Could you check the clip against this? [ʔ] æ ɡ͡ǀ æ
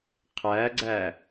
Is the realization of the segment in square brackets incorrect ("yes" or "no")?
yes